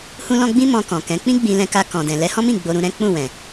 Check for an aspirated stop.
absent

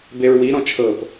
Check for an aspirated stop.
present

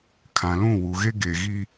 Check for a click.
absent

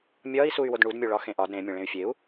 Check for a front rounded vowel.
present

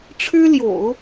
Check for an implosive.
absent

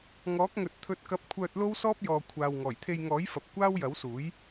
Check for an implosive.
absent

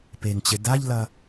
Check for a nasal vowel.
absent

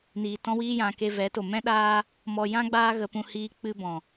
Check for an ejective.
absent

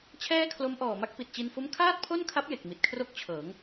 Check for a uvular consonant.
absent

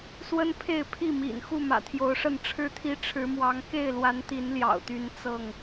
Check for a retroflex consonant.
present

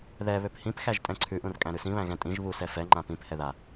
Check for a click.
present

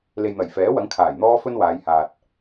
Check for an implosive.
absent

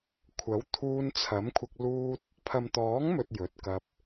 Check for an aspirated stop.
present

